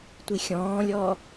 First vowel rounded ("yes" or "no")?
no